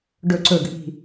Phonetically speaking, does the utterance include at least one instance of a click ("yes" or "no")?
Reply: yes